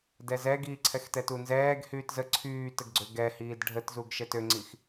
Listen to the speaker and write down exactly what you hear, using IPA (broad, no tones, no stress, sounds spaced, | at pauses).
d ɛ z ɛ ɡ iː ǀʰ ɛ x t ɛ t u n z ɛː ɡ h yː t z ə ǀʰ yː t ə ɡ ɡ͡ǀ ø ɡ ɛ h iː d ɖʱ ə t z u ɡ ʃ ɛ t ø ŋ͡ǀ i x